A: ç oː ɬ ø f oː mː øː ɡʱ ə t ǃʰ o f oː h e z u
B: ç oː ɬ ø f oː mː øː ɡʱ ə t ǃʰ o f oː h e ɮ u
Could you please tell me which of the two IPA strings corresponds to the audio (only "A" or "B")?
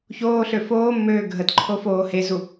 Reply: A